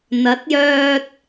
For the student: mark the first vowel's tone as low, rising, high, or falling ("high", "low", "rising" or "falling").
rising